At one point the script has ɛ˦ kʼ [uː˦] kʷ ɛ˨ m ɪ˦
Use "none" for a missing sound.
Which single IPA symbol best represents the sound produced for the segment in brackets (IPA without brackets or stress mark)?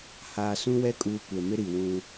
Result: uː˦